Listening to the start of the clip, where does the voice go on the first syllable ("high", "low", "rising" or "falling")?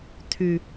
low